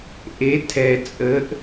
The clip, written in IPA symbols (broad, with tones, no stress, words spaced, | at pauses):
ʔe˩˧ tʰɛ˩t͡sʼə˩˧ʔ